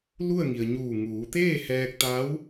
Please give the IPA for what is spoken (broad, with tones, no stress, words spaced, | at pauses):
lu˥˨ə̯ŋi˩ə̯ɲuː˧˩ ŋuː˩˧ t̪eː˥˨hɛː˧k̚t̪a˧˥w